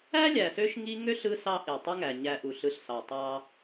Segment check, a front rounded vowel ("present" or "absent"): present